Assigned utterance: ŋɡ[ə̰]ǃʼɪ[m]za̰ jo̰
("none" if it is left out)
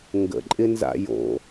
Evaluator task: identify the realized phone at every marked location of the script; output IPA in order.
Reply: ə̰, n

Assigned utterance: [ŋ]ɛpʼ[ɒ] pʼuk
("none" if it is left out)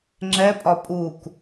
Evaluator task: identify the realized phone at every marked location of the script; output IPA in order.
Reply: ŋ͡ǁ, ɒ

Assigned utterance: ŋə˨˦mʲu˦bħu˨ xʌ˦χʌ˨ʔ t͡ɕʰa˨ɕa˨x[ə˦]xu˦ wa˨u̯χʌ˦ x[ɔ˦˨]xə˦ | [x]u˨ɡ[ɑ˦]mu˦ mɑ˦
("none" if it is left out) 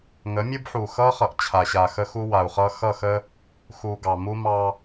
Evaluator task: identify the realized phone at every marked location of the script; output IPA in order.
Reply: ə˦, ʌ˦˨, x, ɑ˨

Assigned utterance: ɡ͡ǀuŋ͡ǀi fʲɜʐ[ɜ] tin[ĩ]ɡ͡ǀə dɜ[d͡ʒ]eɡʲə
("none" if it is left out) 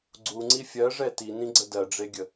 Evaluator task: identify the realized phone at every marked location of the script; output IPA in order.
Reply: ɛ, ĩ, ɖ͡ʐ

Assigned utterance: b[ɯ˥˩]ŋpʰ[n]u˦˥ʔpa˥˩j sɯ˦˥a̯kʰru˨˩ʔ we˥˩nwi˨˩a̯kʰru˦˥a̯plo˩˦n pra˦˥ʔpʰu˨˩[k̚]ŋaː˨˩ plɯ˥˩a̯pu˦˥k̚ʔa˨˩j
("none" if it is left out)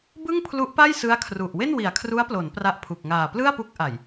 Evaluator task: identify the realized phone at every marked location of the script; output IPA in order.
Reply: ɯ˥˩, l, k̚

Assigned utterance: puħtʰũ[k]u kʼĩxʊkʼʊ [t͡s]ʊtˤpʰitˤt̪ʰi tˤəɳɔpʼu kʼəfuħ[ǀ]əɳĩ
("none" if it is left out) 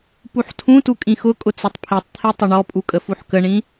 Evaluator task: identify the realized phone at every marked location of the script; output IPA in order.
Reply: t, t͡s, k

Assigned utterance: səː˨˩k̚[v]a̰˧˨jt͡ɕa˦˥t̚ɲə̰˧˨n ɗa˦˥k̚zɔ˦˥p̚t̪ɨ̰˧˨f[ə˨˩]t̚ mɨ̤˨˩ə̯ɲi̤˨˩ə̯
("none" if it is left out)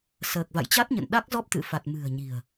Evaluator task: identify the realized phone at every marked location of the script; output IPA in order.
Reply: v, a˨˩

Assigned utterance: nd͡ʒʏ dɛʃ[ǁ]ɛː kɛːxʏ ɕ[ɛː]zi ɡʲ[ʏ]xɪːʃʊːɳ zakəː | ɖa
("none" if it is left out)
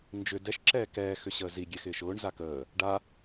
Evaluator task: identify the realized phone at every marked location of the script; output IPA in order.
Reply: ǁ, əː, ɛ

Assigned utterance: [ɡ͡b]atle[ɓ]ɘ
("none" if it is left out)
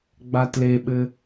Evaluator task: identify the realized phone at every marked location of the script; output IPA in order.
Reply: ɡ͡b, ɓ

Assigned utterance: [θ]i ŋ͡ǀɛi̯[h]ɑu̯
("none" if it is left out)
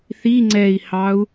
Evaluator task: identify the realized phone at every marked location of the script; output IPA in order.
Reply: θ, h

